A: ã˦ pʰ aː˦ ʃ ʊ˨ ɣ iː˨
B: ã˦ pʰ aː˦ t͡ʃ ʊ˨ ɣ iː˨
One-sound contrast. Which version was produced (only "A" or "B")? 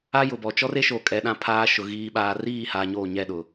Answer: A